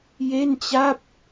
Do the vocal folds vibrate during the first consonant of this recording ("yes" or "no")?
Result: yes